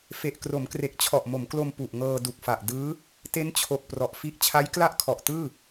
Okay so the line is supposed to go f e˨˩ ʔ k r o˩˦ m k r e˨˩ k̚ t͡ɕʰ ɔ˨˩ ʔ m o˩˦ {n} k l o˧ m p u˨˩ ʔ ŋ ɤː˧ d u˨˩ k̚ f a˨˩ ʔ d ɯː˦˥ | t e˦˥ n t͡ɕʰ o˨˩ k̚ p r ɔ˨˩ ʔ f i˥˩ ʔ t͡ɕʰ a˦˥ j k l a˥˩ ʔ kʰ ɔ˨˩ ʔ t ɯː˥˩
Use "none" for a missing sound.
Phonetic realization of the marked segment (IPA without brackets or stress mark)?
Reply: m